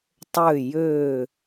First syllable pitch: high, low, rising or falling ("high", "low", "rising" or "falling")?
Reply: falling